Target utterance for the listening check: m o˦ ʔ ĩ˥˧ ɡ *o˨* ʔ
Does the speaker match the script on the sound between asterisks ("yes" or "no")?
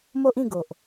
yes